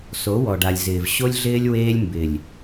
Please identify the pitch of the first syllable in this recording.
rising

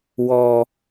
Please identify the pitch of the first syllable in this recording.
low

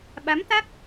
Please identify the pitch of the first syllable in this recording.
rising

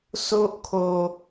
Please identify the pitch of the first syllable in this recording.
high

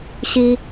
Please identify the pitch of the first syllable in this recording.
high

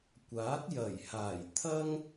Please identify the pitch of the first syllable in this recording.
rising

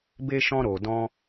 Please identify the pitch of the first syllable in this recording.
high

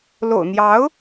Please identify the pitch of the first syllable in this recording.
low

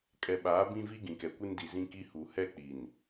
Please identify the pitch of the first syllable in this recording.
low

